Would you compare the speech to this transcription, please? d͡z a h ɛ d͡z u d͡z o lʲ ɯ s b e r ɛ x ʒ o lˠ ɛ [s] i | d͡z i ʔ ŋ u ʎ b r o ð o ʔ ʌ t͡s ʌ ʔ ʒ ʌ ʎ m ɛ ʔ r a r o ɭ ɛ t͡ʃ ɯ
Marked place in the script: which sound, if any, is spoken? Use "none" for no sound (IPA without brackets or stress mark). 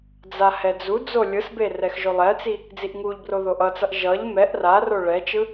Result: t͡s